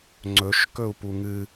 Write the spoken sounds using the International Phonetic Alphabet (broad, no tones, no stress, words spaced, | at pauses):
ŋ͡ǀɵʃ kɵu̯puŋɨ